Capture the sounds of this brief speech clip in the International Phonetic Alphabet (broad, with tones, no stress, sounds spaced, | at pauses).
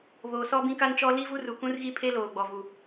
β oː˨ s ɔ˦ b ĩ˦ k a˦ n t͡ʃ ɔ˦ l i˦ v u˦ r u˨ k ũ˦ r ɣ i˦ pʰ e˦ l oː˨ ɡ͡b ɔ˨ v u˨